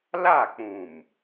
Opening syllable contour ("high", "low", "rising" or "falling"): falling